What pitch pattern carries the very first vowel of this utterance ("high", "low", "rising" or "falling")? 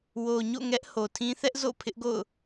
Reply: low